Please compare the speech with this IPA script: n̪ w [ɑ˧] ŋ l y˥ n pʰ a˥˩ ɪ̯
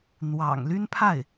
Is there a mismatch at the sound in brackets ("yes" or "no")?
yes